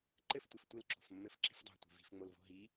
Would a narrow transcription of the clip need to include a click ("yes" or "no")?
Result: yes